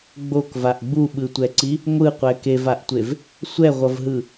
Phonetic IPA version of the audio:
ɡ͡b o k v a ʔ ɡ͡b u ɓ ɯ tʷ ɛ ǀ i | ŋʷ ɯ qʷ ɛ k e v a ʔ tʷ e v | sʷ ɛ ʁʷ ʌ v ɦ ɯ

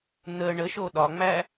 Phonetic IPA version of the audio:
n̪ ə ɳ ə ʃ o ɗ ɒ ŋ͡m æ

